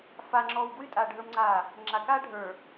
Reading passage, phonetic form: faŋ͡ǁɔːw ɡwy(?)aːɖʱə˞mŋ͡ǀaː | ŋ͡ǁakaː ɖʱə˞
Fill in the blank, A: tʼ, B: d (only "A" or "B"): A